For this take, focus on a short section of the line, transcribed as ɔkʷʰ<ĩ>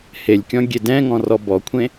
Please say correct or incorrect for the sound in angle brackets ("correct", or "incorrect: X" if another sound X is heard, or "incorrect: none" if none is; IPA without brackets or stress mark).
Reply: incorrect: ẽ